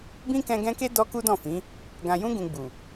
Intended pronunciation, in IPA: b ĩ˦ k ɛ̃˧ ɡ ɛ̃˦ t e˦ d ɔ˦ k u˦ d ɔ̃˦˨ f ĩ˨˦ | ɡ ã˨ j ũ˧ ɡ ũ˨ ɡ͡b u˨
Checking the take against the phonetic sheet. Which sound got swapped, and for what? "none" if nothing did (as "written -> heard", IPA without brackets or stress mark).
t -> k